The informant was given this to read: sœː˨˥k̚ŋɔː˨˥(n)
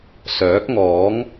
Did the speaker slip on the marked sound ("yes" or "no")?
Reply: yes